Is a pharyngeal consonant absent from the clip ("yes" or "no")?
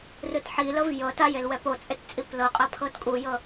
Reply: no